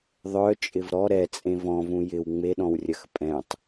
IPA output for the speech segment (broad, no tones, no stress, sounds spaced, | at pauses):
ðˤ œ t͡ʃʼ ɪ v ɾ ɔ ɾ ɛ t͡sʼ ẽ v ɔ̃ v ũ j ɪ w ŋ͡m e ɗ ɔ̃ w rʲ ɐ x pʼ ɛ̃ tˤ